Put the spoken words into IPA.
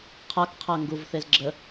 qʰ a k qʰ a ŋ ɡ u v θ e z ɡ͡ǁ ə

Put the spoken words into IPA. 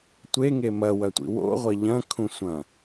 tʷ e ŋ e m ɐ w ɐ tʷ ḭ w o̰ ʁʷ ɐ ʎ ɐ̃ kʰ ũ sʷ ɐ̃

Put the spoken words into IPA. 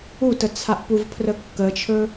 u t ə t͡sʰ a ʔ p u v pʰ r ə kː ə t͡ʃʰ ɵ

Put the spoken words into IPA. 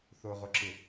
θ o ʁ o ǁ ɪ

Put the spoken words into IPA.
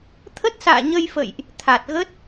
t̪ʰ ə˦˥ t̚ s a̰ː˧˨ ɲ ə˧ j f ə̰˧˨ j ʔ | t̪ʰ a˨˩ t̚ ɣ ə˦˥ t̚

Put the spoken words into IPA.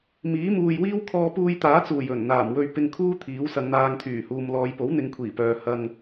m iː˨˥ m uː˨ j w iː˥ w kʰ ɔː˧ p uː˧ j t̪ aː˨˥ t͡s uː˨˩ j ɵ˨˩ n n̪ aː˨˩ m w ɵ˧ ɥ p ɪ˧ ŋ kʰ uː˥ t̪ʰ iː˨˥ w s ɐ˨˧ ŋ n̪ aː˧ ŋ t̪ʰ yː˨˩ h uː˨ m l ɔː˨˧ j p o˨˥ w n̪ ɪ˨˧ ŋ kʷʰ iː˨˩ p œː˨ h ɐ˧ ŋ

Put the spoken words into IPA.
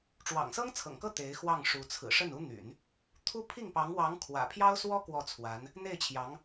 ʈ͡ʂ w ɑ̰˨˩ ŋ s ɤ˥ ŋ t͡sʰ ɤ̰˨˩ ŋ k ɤ˥˩ t̪ e˧˥ ɪ̯ x w ɑ˥˩ ŋ ʂ u˧˥ t͡sʰ ɹ̩˨˩ ʂ ə˥˩ n u˥ n̪ y̰˨˩˦ n | t̪ʰ u˥ pʰ i˥˩ ŋ p ɑ˧˥ ŋ w ɑ˧˥ ŋ kʰ w ä̰˨˩ pʰ j ɑ˥ ʊ̯ s w ɔ˥ k w ɔ˥˩ t͡sʰ w a˧˥ n | n̪ e˥˩ ɪ̯ t͡ɕʰ j ɑ˧˥ ŋ

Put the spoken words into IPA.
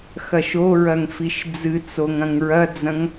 x ɐ ʃ o ɹ ɐ ŋ f i ʃ d͡z ɨ t͡s o ŋ ɐ̃ ŋ ɹ ɐ d͡z ɐ̃ ŋ

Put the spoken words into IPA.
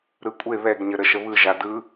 ɾ ɯ kʷʼ e β ɛ ɡ ɲ ə ɾ ə ʃ ə β ɯ ʒ a d ɯ

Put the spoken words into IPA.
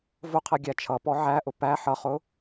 v ʊ qʰ ɛ ɡʲ æ t͡ʃʰ ʌ p ɔ ʕ æ ʔ ʊ p æ ħ ʌ χ ʊ

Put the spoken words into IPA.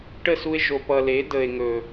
ʈ ə˦˨ s u˧ e̯ ʒ o˨ p ʌ˨ l e˨˦ d ə˨ e̯ ŋ ɵ˨

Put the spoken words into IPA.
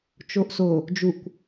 t͡ʃ o ʔ s o | d͡ʒ u kʷ

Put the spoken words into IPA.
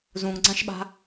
z ũ ŋ ɡ͡ǀ ã ʃ ɓ a̤

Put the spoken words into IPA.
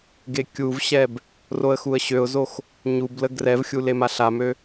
ɡ e kʲ u v ɕ ɛ b | r o ə̯ x u ə̯ ɕ ø ʊ̯ z o x | ɲ u b l ə ɡ r ɛ v xʲ u l e m a ɬ a m ø

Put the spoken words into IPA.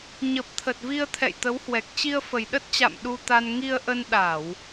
ɲ ə˨˩ p̚ t̪ʰ ə˨˩ t̚ v i˧ ə̯ t̪ʰ ɛ̰˧˨ j t̪ ə˨˦ w h w ɛ˨˩ k̚ t͡ɕ i˧ ə̯ f ə˨˩ j ɗ ə˦˥ t̚ t͡ɕ a̰˧˨ m ɗ u˧ t̪ a˧ n ŋ i˧ ə̯ ʔ ə˧ n ɗ a˧˩˨ w

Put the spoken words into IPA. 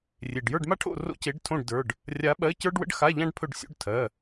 rʲ e˩ ɖ j ə˞˦˨ ɖ m a˥ ʈʰ o̰˦˨ r o̰˥ c e˧˥ ɖ tʰ õ˦˨ ɖ d ə˞˩˧˩ ɖ | rʲ a˧˥ ɓ ɜ˧˥˧ c ə˞˥ ɖ w ə̰˥ ɖ x a˧˥˧ ʎ ã˥ ɖ pʰ ɵ˦˨ ɖ sʲ o̰˧˥˧ ɖ tʰ ɜ˩˧˩

